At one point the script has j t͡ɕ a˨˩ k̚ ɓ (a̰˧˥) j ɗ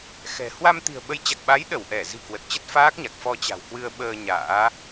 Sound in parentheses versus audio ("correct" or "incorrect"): incorrect